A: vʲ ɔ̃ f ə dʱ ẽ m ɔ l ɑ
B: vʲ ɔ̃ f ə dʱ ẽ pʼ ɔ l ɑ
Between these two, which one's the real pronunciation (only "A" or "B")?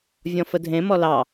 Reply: A